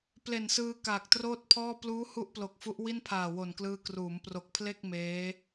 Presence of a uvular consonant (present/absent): absent